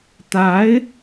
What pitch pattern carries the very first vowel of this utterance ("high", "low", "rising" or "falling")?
rising